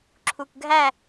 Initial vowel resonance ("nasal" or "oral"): oral